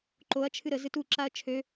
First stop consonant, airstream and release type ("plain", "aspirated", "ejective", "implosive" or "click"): click